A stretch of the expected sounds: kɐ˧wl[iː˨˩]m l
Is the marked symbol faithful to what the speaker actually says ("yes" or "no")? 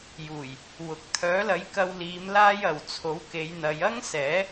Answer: no